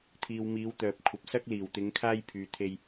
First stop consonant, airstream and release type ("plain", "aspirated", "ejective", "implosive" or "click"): aspirated